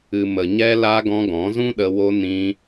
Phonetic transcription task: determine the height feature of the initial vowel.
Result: high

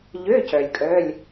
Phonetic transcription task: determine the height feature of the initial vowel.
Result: mid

